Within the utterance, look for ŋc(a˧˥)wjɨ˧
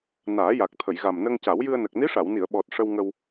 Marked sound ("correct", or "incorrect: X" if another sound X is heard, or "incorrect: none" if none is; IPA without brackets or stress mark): incorrect: a˨˩˦